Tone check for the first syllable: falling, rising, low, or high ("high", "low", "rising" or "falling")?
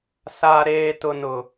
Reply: high